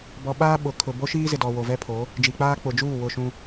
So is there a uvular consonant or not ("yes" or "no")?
no